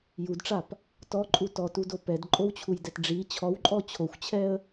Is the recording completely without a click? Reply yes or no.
no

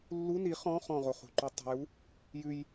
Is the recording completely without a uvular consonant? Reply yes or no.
no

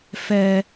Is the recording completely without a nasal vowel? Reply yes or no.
yes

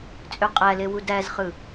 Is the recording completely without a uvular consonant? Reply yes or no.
no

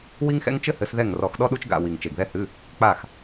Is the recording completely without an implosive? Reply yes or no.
no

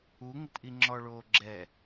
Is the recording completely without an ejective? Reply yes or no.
yes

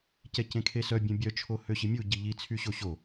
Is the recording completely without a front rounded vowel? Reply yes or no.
no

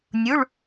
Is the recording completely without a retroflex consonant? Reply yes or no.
no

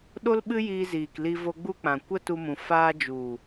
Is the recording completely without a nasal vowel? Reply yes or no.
no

